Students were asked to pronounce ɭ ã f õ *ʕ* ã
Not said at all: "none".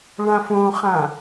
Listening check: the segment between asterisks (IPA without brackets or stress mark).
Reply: χ